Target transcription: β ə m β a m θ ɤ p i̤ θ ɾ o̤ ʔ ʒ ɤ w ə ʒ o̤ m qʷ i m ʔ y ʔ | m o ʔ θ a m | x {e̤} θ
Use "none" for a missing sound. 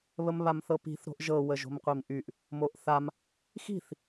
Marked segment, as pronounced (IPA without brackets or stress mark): i̤